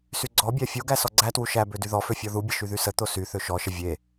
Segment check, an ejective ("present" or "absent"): absent